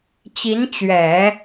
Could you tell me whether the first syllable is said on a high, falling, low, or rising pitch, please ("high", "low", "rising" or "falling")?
rising